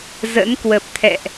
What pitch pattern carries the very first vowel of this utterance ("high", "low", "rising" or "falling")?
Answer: rising